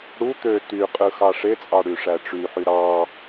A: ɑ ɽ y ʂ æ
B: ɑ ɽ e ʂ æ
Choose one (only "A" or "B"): A